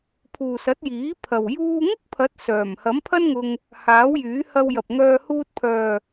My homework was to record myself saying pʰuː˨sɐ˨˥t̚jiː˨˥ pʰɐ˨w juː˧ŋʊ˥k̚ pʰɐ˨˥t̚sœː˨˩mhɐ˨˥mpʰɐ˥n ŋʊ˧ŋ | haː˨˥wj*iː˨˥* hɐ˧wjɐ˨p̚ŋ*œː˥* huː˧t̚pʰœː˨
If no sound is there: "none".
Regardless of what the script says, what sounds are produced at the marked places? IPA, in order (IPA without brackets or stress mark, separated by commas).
yː˨˥, œː˧